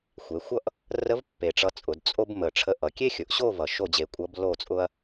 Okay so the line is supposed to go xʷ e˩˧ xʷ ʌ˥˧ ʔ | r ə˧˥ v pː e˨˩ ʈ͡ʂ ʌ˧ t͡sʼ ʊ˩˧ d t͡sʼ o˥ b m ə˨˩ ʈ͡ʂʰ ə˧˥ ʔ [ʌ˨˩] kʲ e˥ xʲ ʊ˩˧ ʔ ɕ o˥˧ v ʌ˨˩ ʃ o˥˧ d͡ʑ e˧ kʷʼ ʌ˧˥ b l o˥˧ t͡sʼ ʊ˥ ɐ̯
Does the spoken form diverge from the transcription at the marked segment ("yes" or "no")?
yes